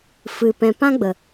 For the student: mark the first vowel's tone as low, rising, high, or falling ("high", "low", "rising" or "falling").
low